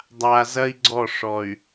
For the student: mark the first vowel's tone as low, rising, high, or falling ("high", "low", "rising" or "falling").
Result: low